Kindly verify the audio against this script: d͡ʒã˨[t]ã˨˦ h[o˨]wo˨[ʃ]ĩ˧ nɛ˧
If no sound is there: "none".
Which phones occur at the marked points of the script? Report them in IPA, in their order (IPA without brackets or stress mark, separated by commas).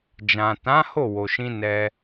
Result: t, o˦˨, ʃ